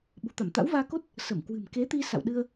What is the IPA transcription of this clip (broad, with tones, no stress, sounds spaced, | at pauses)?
ɓ ṳ˨˩ t̪ a˧˩ m t̪ a̰˧˥ w v aː˧ k o˦˥ t̚ | s ə˧˩ m k w ɨ̤˨˩ m k e˨˦ t̪ i˧ s a̰˧˨ w ɗ ɨ˧ ə̯